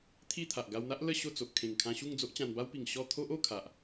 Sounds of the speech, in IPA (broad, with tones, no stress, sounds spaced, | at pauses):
t̪ʰ i˥˧ t̪ʰ a˨ ʔ ɡ a˧ w n̪ a˦ ʔ l ə˥˧ ɕ o˥˧ t͡s o˨ ʔ kʰ ẽ˨˩ ŋ kʰ ã˧ ɕ u˥˧ ŋ d͡z o˦ ʔ t͡ɕ ã˧ n b a˦ w p i˨˩ ŋ ɕ ɔ˥˧ t̪ʰ o˦ ʔ o˥˧ kʰ a˨ ʔ